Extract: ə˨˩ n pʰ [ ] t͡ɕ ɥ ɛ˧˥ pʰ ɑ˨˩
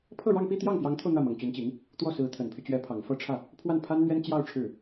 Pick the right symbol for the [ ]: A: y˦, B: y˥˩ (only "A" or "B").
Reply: A